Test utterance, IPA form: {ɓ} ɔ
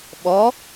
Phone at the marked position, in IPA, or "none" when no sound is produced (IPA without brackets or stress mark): ɓ